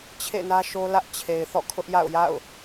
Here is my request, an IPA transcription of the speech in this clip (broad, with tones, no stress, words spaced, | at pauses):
t͡ɕʰḛ˦˨ nä˦ʃo˦ lä˦ʔt͡ɕʰe˨ɪ̯ θɔ̰˦˨kʰʊ˦ʔja̰˦˨ʊ̯ja̰˦˨ʊ̯